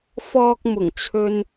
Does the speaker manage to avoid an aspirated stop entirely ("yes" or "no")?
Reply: no